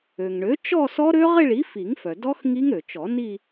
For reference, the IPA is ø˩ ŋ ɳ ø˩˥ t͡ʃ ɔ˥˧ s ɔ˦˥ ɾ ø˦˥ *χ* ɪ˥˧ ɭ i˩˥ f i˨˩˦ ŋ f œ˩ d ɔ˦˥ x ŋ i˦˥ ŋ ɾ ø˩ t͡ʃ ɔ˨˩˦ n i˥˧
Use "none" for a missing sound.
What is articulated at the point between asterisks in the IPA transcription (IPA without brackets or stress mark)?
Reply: ʁ